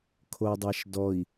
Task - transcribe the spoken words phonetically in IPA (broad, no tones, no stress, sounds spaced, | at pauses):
kʰ o dˤ æ ʃ d ɔ i̯